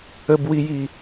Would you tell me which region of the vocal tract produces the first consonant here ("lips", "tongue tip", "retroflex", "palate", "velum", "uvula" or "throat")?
lips